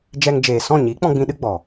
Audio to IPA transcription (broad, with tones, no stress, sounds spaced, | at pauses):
d͡ʒ ɛ˧ ŋ d͡ʒ eː˨ s ɔ̃˦˨ ɲ i˨˦ k͡p ɔ̃˧ ɡ͡b ĩ˧ ɗ ɨ˦ ɡ͡b ɔ˨